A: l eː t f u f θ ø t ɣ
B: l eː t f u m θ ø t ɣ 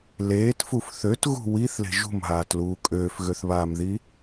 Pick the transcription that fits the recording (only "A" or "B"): A